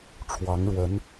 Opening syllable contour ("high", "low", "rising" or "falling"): rising